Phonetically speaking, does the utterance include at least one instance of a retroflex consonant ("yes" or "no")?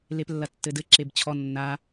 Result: no